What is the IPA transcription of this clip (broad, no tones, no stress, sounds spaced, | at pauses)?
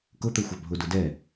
k ʊ t̪ ə˞ xʷ ɑ bʱ ʊ d ʊ d ɛ